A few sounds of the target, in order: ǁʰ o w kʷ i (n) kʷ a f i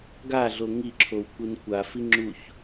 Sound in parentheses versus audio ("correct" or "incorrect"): correct